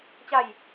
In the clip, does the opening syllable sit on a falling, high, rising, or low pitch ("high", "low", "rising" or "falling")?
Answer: falling